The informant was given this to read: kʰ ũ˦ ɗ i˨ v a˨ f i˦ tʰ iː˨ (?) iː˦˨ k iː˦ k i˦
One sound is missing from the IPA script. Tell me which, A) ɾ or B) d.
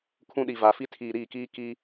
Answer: A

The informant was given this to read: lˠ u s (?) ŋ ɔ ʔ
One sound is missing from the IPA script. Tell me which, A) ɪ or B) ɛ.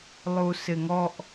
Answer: A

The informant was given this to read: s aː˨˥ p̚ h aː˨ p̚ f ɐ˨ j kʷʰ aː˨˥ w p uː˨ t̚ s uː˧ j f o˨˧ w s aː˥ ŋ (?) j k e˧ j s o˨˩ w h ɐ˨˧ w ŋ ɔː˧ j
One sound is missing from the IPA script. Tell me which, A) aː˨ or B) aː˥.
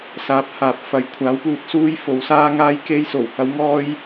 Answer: B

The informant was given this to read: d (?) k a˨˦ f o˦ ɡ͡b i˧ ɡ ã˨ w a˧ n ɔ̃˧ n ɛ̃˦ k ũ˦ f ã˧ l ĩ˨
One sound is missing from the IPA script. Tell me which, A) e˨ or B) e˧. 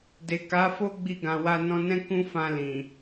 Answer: A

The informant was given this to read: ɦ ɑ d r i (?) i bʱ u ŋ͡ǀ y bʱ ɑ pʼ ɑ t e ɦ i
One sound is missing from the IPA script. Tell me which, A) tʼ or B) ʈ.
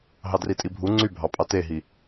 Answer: A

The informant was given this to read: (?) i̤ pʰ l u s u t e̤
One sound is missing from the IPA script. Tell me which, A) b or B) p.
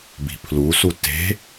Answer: A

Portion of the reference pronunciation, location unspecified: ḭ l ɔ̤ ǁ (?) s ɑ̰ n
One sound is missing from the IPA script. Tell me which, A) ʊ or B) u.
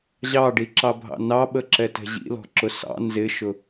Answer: A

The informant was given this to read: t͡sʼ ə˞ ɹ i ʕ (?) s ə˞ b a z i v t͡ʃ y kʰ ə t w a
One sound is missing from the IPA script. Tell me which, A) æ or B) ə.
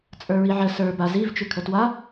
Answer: B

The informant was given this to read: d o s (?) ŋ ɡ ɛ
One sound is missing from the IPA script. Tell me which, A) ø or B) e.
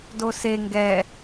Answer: B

